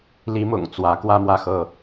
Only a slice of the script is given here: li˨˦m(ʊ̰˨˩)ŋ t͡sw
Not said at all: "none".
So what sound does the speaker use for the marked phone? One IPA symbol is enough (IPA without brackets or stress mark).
ʊ̰˨˩